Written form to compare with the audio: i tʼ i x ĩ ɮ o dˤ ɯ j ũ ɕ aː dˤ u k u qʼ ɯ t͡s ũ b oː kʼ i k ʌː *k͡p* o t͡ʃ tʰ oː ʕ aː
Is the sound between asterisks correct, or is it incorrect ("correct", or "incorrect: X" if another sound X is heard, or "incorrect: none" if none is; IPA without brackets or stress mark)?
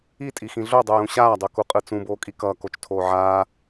incorrect: k